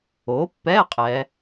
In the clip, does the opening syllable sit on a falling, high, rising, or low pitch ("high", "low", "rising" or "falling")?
rising